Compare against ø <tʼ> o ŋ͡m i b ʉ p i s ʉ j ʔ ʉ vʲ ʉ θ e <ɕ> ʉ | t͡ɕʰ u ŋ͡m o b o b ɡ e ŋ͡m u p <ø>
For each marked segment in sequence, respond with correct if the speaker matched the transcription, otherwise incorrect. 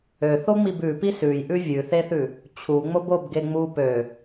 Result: incorrect, incorrect, correct

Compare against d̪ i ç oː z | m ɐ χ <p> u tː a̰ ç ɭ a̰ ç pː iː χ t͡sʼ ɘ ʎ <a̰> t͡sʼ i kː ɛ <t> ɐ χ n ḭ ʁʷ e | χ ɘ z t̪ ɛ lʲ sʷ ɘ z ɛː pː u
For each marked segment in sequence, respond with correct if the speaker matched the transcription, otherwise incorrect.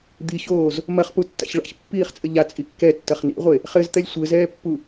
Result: correct, incorrect, incorrect

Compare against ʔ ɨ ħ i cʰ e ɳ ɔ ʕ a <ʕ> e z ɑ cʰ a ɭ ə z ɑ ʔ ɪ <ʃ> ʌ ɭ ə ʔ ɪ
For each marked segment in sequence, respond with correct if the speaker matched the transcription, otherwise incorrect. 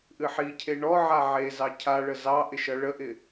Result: correct, correct

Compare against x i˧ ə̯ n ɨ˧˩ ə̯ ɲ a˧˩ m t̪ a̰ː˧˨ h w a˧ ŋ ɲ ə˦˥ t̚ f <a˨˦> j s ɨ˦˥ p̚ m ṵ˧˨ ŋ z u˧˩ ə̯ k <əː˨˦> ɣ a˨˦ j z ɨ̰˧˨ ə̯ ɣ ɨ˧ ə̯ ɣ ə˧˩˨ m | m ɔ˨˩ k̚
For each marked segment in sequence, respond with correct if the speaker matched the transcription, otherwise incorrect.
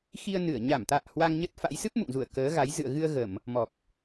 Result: incorrect, correct

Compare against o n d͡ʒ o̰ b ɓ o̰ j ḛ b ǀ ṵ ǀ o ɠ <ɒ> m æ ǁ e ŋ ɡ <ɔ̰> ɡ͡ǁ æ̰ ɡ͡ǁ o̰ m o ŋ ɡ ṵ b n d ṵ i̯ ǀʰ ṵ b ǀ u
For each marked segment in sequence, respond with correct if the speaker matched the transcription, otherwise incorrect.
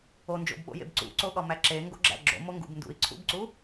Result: correct, incorrect

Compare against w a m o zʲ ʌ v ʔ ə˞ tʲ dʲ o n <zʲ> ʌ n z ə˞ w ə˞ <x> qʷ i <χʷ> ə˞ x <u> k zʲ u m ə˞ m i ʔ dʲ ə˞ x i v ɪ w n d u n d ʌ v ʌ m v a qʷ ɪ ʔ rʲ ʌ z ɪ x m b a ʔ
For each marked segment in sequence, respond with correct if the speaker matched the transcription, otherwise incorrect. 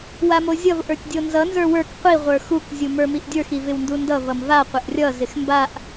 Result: incorrect, incorrect, incorrect, correct

